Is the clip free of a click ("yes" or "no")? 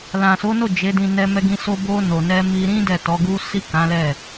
yes